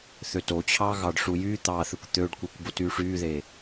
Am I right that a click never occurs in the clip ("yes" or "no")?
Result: yes